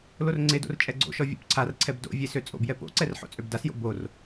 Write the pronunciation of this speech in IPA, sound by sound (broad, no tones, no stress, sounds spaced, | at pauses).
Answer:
l o r ŋ͡ǀ e d o̰ r t͡ʃʼ ɛ ɡ͡ǀ o̰ ʃ ɔ vʲ o̰ p ǀʰ a r ǀʰ ɛ b d o̰ vʲ e s ø t͡sʼ o̰ b j ɛ p o̰ ǀ ɛ r ħ o̰ t͡sʼ ø b d a s j o̰ b o r